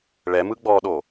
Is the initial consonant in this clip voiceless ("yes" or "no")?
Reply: no